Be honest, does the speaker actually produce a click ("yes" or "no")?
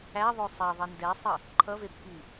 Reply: yes